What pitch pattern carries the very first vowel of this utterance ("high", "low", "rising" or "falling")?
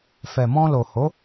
low